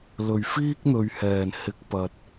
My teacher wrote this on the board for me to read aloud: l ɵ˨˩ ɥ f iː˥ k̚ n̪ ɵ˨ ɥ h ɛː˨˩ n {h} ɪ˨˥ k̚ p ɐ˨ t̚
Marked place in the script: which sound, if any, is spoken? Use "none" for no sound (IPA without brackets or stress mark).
h